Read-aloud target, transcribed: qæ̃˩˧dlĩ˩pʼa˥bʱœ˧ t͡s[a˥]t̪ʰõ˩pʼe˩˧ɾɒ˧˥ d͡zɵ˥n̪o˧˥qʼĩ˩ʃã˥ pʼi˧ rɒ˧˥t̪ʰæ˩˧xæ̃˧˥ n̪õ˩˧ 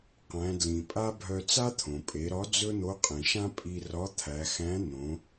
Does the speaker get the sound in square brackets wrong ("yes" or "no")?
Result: no